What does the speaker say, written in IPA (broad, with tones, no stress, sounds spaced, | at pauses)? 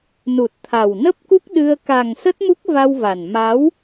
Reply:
n u˨˩ t̚ t̪ʰ a˨˩ w n ə˦˥ p̚ k u˦˥ k̚ ɗ ɨ˧ ə̯ k a˨˩ ŋ s ə˦˥ t̚ m u˦˥ k̚ v a˧ w v a˨˩ n m a˨˦ w